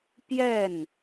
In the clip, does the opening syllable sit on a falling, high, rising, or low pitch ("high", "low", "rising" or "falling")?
falling